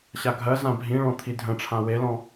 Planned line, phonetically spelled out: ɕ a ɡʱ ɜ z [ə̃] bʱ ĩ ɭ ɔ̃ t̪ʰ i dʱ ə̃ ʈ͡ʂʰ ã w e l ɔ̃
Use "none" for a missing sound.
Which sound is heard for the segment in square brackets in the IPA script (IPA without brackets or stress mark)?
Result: ã